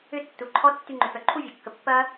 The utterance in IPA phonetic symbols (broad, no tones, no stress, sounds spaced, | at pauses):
ʏ tː u ǃʰ ɔ tː y ŋ͡ǃ ʏ f œ ǃʰ u vʲ ɐ kː ə pː ɐ